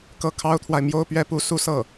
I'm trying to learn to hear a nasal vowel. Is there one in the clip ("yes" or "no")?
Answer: no